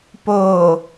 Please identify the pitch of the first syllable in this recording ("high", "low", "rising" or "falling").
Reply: low